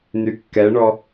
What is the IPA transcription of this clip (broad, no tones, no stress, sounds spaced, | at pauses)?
n y kː ɛ ɳ ɔ